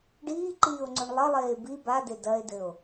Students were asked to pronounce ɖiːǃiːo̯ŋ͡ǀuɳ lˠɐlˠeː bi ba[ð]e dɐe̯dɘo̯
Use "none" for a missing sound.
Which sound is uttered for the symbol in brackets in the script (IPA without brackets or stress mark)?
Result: d